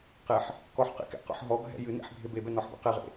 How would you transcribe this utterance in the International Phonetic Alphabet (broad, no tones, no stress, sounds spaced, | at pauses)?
q e ħ | k ɔ ħ q ḛ k ɛ̰ q ɔ̰ ħ ɦ ɔ ɡʱ ɛ̰ j ɨ n ḛ ħ bʱ e b e b ɛ n ɔ ħ b ḛ q e ʁ ḛ